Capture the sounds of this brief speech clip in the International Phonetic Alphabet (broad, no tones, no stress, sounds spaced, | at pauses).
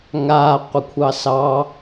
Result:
ŋ a qʷ ə kʷʰ ɑ s ɑ